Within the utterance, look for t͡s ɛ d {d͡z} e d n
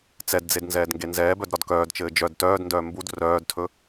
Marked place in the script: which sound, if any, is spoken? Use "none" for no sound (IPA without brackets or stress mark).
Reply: d͡z